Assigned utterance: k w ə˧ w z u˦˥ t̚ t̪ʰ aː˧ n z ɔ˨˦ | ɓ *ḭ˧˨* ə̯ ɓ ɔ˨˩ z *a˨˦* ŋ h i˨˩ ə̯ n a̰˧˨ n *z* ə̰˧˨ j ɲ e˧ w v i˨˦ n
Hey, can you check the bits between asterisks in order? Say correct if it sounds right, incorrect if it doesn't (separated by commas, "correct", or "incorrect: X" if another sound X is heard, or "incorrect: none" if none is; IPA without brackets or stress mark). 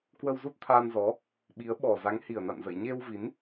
incorrect: i˨˦, correct, correct